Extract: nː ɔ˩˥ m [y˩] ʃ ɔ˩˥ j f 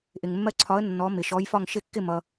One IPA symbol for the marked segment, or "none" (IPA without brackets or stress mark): ɪ˩